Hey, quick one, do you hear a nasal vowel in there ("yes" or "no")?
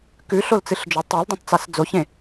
yes